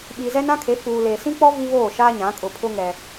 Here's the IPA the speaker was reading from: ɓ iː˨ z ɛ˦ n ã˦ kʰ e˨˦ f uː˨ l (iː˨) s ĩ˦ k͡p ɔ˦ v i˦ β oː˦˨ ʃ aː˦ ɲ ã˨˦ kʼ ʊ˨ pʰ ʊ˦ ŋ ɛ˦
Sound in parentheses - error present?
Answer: yes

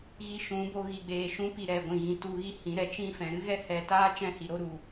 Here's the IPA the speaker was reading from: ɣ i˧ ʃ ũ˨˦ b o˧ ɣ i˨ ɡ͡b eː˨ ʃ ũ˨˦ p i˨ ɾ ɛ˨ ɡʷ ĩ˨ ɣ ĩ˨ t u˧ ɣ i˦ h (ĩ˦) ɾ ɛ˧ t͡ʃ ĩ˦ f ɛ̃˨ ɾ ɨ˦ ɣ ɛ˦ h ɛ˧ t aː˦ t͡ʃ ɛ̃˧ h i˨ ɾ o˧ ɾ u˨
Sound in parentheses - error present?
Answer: yes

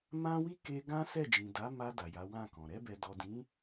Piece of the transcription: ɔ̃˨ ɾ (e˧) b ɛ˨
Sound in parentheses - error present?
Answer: yes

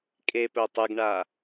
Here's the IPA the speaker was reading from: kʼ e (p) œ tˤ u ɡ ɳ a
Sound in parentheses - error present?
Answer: no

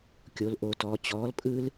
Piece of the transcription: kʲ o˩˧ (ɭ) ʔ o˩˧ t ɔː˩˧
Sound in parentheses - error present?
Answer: yes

